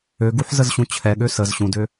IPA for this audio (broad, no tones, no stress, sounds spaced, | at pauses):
ø ɡ u ħ z ə z ɕ ũ t͡ɕʰ ɛ ɠ ø s ə z ɕ ũ d ø